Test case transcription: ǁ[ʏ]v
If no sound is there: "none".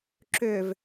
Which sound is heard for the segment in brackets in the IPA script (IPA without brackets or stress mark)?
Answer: ʏ